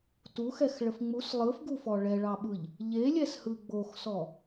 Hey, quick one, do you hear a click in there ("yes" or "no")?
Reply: no